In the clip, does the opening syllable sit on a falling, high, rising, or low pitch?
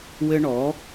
high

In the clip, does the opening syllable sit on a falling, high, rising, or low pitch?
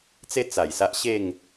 high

